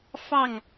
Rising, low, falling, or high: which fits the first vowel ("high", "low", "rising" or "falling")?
falling